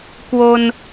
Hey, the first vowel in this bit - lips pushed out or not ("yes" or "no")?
yes